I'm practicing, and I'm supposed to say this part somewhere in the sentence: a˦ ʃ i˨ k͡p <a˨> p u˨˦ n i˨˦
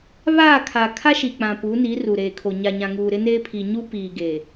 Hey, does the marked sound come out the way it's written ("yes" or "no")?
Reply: no